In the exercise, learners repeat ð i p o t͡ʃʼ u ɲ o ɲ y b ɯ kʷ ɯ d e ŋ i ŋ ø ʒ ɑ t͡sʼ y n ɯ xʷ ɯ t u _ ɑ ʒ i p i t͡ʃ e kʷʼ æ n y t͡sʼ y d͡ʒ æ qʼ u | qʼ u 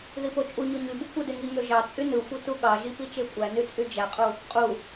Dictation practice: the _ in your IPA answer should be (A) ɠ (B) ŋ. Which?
A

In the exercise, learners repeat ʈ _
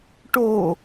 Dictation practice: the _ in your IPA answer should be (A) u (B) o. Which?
B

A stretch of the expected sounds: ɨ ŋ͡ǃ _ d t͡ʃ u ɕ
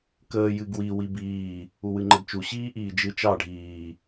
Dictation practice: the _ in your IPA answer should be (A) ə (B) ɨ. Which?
A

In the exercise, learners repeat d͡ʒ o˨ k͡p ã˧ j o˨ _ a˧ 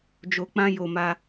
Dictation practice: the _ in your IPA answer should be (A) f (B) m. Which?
B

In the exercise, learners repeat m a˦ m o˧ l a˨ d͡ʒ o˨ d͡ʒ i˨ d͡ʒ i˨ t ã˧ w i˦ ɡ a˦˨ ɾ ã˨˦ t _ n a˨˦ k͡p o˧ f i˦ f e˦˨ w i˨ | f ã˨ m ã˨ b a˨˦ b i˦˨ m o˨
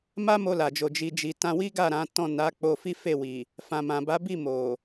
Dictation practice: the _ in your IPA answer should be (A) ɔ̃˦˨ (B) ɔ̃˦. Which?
A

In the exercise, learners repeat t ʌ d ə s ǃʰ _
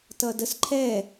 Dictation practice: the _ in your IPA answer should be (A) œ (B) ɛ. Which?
B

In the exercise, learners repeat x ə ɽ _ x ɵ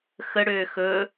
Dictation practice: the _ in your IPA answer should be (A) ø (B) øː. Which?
B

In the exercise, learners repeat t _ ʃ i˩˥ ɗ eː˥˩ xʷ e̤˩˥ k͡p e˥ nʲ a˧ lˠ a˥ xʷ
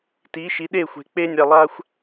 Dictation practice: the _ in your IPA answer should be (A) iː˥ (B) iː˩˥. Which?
B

